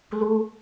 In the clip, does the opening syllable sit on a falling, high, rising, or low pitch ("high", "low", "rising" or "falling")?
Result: high